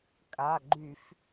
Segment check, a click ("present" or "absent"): present